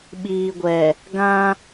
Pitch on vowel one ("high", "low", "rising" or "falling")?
low